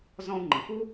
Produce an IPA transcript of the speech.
zɔ̃˧u̯ŋ͡ǃə̃˩fu˥

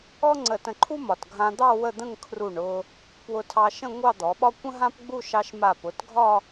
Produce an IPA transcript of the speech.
ɔ˥ŋ͡ǀə˧˩tə̃˧˩ǃʰu˥ mɒ˧˩t ɡʱã˧d̪ɑ˥˧ wə˥˧d̪ə̃˥˧ŋ kʰru˧˩ɳ ʊ˧ | pwʊ˧tʰɑ˧ʃə̃˥˧ ŋʷɑ˥˧d̪ɔ˩˧ɓɒ˥ kʷə̃˥ɦã˥pɡ͡bu˥˧ ʃɑ˧ʃma˧˩pʊ˩˧tɡʱɒ˥˧

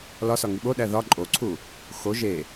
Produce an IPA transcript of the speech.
lɒsɒ ŋiɓoɗæ ðɒ ǃʼoǀʰu | xo ʒe

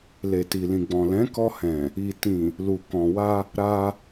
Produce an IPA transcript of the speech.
le˨ti˨lĩ˨ɡ͡bɔ̃˨ lɛ̃˨˦kɔ˧hɛ̃˨ | i˨tĩ˨ | lu˨kɔ̃˨wa˧ | ɾa˧

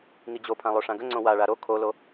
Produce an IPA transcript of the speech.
ŋid͡ʑopʰã lˠoʂãɡəŋ͡ǀõ waɭa ɾo kʰolo

